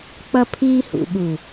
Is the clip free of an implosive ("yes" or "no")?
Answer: no